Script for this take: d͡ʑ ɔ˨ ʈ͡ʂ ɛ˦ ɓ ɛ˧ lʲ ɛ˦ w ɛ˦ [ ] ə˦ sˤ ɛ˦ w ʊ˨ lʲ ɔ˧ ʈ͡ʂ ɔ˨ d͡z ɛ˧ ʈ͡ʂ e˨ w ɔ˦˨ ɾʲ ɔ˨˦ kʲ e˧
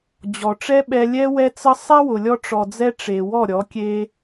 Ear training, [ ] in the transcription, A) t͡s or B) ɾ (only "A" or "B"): A